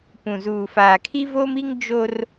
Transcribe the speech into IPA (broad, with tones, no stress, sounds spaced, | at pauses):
p ũ˨ z uː˨ f aː˨ kʰ i˦ v o˦ m i˦ ŋ d͡ʒ o˦ r